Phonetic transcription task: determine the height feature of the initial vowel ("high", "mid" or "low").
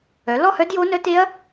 mid